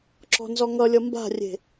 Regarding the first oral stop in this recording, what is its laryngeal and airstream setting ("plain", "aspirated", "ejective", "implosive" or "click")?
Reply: click